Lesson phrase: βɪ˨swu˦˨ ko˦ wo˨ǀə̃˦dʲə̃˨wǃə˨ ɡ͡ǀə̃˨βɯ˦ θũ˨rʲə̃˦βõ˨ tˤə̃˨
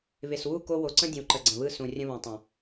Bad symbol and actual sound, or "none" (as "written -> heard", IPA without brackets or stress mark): θ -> s